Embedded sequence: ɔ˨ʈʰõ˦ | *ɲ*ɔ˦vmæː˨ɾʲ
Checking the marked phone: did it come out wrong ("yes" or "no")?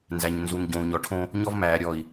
no